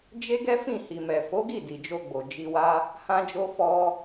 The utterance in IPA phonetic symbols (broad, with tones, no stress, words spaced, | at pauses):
d͡ʒe˦ɡɛ˦fĩ˦˨ hi˨mɛ˨fo˨˦ɡi˦˨ di˨d͡ʒo˧ɡ͡bo˨ d͡ʒi˧wa˦ | hã˦d͡ʒo˦fɔ˦